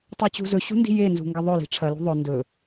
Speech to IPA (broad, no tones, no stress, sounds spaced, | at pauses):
tˤ ɛ t͡ɕ ṳ z ɵ ɕ ṳ n d i̤ j e n z ṳ ŋ ɡ ɐ ðˤ ɵ l i̤ ʈ͡ʂʰ ɐ l ṳ ðˤ ɵ n d ɵ